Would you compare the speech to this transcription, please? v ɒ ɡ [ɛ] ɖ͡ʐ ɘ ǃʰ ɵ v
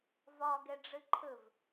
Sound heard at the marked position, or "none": ɛ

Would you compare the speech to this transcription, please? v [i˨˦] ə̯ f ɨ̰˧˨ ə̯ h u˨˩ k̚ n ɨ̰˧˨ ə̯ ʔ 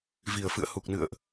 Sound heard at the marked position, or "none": i˨˩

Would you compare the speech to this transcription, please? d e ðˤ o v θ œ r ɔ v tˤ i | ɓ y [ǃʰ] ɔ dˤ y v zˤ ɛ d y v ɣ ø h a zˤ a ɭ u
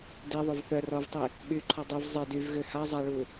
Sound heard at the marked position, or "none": ǃʰ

